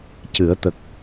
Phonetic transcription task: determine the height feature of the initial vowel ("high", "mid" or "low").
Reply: high